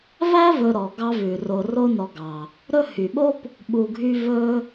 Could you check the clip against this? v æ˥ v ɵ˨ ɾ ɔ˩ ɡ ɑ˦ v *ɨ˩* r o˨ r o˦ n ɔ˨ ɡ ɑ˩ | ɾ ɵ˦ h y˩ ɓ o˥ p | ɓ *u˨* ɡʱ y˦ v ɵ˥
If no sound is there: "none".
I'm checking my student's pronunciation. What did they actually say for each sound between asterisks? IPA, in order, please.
ʉ˩, u˨

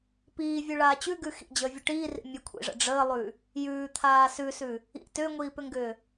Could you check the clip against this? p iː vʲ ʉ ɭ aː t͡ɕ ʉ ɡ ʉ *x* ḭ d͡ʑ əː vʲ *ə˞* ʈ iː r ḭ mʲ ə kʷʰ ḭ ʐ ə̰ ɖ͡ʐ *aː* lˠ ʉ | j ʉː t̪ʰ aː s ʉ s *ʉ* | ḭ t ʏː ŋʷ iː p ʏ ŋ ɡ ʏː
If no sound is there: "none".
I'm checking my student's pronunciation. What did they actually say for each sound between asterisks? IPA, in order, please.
x, ə, əː, ʉ

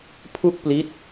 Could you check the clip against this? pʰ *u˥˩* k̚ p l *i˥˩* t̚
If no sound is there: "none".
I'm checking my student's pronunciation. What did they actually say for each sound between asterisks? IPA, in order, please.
u˥˩, i˦˥

